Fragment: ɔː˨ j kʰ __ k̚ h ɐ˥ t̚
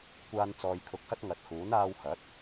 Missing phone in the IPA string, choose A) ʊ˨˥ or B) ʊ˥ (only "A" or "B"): A